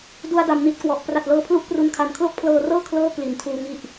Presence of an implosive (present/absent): absent